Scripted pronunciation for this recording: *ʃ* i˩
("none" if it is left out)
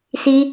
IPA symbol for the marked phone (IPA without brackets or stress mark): s